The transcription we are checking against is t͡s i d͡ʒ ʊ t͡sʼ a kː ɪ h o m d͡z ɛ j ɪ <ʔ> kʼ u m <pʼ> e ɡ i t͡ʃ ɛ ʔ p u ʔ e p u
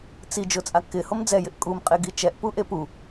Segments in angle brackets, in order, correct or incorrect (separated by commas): correct, incorrect